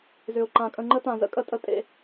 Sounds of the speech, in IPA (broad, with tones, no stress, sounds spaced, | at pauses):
z ʏ˨ ʊ̯ ǃ ã˨ kʼ ə̃˨ ŋ͡ǃ ə˦ t ã˨ z ə̰˦ kʼ ə˦ tʼ ə˦ tʼ ḛ˨˦